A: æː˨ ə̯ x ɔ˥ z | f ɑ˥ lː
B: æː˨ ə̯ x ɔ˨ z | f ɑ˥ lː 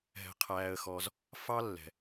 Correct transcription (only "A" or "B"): B